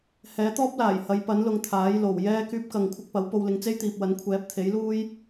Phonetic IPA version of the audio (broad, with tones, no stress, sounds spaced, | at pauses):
h ɛː˨˥ t̪ ɔː˥ p̚ l aː˨˩ j h ɐ˨˥ j p ɐ˨˥ n l ʊ˨˧ ŋ t̪ʰ aː˨˥ j l o˨˩ w j ɛː˥ k yː˧ p̚ k ɐ˨ ŋ kʷʰ ɪ˧ k̚ p ɐ˨˥ w p o˧ w l ɪ˨˥ ŋ t͡s e˥ j t̪ iː˨ p̚ w ɐ˨˥ n kʷʰ ɛː˨˥ p̚ t̪ʰ e˨˥ j l uː˥ j